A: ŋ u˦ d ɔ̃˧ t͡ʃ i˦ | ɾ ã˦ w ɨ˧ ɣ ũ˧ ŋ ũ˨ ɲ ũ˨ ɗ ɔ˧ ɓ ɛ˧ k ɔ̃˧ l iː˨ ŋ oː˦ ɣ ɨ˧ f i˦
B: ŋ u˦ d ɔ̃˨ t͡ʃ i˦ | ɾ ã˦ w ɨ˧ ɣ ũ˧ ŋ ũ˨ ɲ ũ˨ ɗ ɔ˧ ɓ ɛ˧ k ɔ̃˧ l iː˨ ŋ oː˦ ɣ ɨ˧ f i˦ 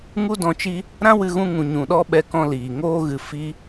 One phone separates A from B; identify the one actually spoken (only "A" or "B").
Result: A